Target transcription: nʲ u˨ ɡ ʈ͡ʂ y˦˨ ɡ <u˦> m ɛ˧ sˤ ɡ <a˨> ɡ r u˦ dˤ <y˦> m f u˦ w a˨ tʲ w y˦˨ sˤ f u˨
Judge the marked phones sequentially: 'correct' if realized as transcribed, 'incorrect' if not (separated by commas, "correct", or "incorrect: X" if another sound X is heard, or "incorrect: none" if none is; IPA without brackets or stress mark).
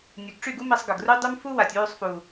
correct, incorrect: ə˨, correct